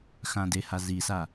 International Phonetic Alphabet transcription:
x ã d e h a z i s a

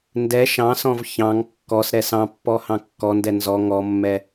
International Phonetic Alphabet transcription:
n d ɛ ʃ ɑ̃ s ɔ̃ v ç ɑ̃ ŋ kː ɔ s ɾ ɛ s ɑ̃ pː ɔ h ɑ̃ kː ɔ n d ɛ n z ɔ ŋ ɔ mː ɛ

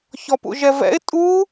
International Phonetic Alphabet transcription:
ç ɔ p ṵ ʒ ɛ v ɛ̰ ɪ̯ tʼ u

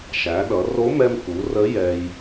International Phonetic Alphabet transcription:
ʃ æ˩˧ ɗ ʌ˩˧ r o˧˥ m ɛ˧ m k u˩˧ r ə˧˥ j ɛ˧ j

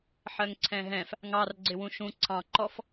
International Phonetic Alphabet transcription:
ħ ɜ ŋ ǀʰ ɛ̃ ɦ ɛ̃ f | ŋ ɑ r ɡ͡ǀ ɪ w ũ ʃ ũ ǀʰ ɑ̃ ǃ ɔ f

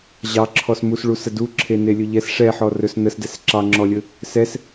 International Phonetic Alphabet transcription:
ʑ ɑ ǁʰ ɔ s m u s ɭ u s ə d u ǁʰ e n e lʲ ɵ ʎ ɛ s ʂ ɛ ħ ɔ r ɵ s n ə s d ɛ s ǁ ɑ ŋ͡ǁ ɔ lʲ ɵ | s ɛ s

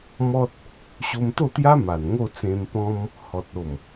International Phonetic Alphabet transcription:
m ɔ˦ t̚ | ɕ o˧ m t̪ o˥˧ t̪ j a˦ m a˨˩ n ŋ o˥˧ t͡s ẽ˧ m p ɔ̃˧ m | h ɔ˨ t̚ o˨˩ m

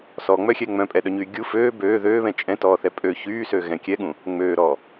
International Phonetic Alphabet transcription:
s ɔ ŋ͡m œ xʲ ɛ ŋ͡m œ̃ pʼ ɛ ɗ œ ɲ yː ɡʲ u f øː b øː ð øː β ɛ̃ t͡ʃʼ ɛ̃ t ɔː θ ɛ pʼ ø ç yː s ø ɣ ɛ̃ kʲ ɛ ɠ ũ | ŋ͡m øː ɾ ɔː

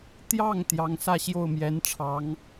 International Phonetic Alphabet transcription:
t̪ j ɑ˥˩ ŋ t̪ j ɑ˧˥ ŋ s ä˥˧ ɕ j o˥˩ ʊ̯ m j ɛ˧˥ n ʈ͡ʂʰ ɑ˧˥ ŋ

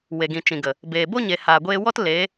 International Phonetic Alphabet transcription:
w e˨ ɡ ĩ˨ t͡ʃ ĩ˨ ɡ ə˨ | b eː˨ b o˦ ɲ e˨ h aː˨ ɡʷ eː˧ w ɔ˦ t l e˨˦

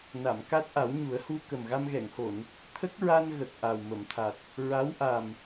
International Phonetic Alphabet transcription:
n a˨˩˨ m k a˦˥ t̚ ʔ a˨˩˦ w ɲ u˨˩˦ ə̯ h u˧ k ə˨˩ m ɣ a˧ m ɣ ɛ˨˩˨ ŋ h o˨˩˨ n | t̪ʰ ə˦˥ k̚ ɹ a˧ n ɣ ə˨˩ k̚ ʔ a˨˩ w m ə˨˩˨ m t̪ʰ a˨˩ t̚ | ɹ a˧˥ w ʔ a˨˩ m

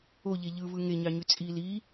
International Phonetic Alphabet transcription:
o ʎ e ʎ ɯ v ɯ ŋ e ɲ ɑ ɲ y t͡sʼ i l i

